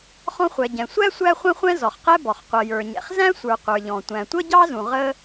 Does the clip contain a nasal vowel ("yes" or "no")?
yes